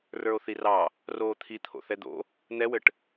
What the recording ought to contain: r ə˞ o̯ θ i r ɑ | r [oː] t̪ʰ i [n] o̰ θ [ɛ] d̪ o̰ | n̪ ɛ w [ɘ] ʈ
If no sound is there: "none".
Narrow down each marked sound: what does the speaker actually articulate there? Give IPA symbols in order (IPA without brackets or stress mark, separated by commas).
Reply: oː, t̪ʰ, ɛ, ɘ